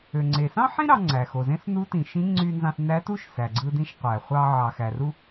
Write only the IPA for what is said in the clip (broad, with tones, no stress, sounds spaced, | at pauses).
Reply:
ø˩ ŋ͡ǀ e˩ s ɑ̃˥ ħ ĩ˥ ɾ ɑ˧ ŋ͡ǀ æ˩ x o˩ z ẽ˧˥ s n u˧˥ t ĩ˩ ʃ ĩ˧˥ ŋ͡ǀ y˧ n z ɑ̃˧ s n æ˧˥ t u˥ ʃ s æ˩ ɡ͡ǀ ɯ˧ d ĩ˧ ʃ qʷ æ˩ χʷ ɑ˧ ʕ ɑ˩ x æ˩ r u˧